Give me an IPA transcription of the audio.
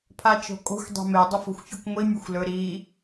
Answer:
pʰ a t͡ʃ o̤ kʼ o̤ xʷ dˤ e̤ m e dˤ o f o̤ xʷ fʲ ɵ kʷ ŋʷ i mʲ ɵ xʷ l ɵ ɾ i

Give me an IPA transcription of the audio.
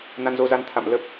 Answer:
n a˧ n z o˧ z a˧ n t̪ʰ a̰˧˨ m l ə˦˥ p̚

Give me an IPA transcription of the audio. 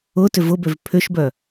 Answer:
ʊ t ʏ v ʊ b ø v pʰ ʏ ʃ b œ

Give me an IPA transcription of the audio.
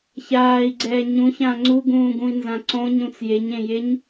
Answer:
ç aː i̯ ɡ͡ǀ ɛː ɲ ũ ç ãː ŋ͡ǀ u ɡ ũː ɡ ũ i̯ n z ã ǀ õ ɲ ũ t͡s j e ɲ ẽ j e ɲ

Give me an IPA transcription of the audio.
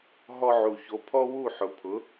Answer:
ɦ ɔ˧ ʕ u˩ ç o˩˥ pʰ ɔ˥ w u˥˩ ħ ʊ˩ pʰ ʊ˩˥

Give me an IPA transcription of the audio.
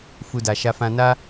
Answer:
f u˧ d a˨ ʃ a˧ f ã˧ n a˦

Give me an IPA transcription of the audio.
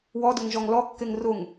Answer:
w ɔ d ʊ ŋ ʒ ɔ ŋ l ɔ kː e ŋ r ʊ ŋ

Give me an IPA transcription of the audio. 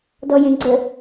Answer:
d ɔ j ẽ ɡ͡ǀ ə

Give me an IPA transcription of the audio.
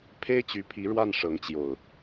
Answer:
pʰ e˦ ɪ̯ t͡ɕ y˨˦ pʰ i˨˦ ɻ w a˥˨ n ʂ ɤ˨˦ ŋ t͡ɕ j o˨˩ ʊ̯

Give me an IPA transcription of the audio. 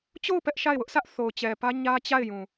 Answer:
t͡ɕ o˦˨ ʊ̯ p ɛ˦ ʔ ʃ a˦˨ ɪ̯ w ʊ˦ ʔ s ä˦ ʔ θ o˨ ʊ̯ t͡ɕ ɛ˨ p ä˦ ɲ ä˦ t͡ɕ a˦˨ ɪ̯ j ũ˨

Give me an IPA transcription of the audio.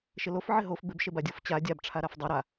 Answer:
ʃ ɪ l o f ʕ ɪ ɦ o f b ɪ b ʃ e b a dʲ o f t͡ɕ a dʲ a b ʈ͡ʂʰ a ɾ a f dˤ a ɾ a

